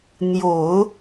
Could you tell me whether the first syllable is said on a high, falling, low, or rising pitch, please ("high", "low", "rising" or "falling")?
low